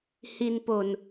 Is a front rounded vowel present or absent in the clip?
absent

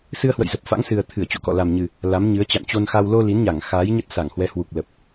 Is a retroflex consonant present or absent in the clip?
absent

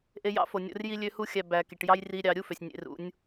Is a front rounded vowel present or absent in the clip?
present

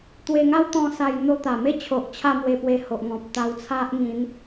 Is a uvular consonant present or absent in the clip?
absent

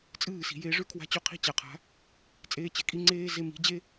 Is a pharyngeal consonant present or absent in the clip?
absent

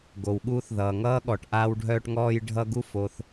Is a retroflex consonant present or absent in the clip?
present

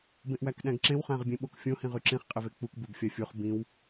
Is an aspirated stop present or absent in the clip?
absent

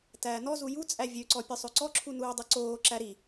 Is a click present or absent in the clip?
present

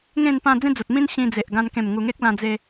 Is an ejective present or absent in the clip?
absent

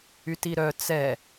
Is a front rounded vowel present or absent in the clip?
present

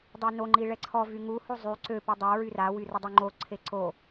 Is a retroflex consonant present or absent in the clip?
present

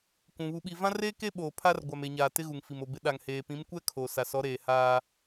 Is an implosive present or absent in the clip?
present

